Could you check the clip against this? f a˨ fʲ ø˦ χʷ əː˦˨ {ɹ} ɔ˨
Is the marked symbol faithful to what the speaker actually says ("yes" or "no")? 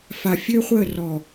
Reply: no